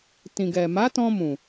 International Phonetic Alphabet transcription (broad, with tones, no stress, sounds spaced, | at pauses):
t ĩ˨ ɡ ɛ˨ m a˨˦ t ɔ̃˧ m ũ˨